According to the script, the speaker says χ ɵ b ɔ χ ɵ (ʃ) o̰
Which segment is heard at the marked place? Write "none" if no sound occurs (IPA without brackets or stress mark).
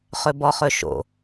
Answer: ʃ